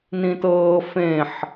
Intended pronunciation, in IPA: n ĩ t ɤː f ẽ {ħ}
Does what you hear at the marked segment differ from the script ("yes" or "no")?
no